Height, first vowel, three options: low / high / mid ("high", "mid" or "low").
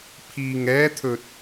high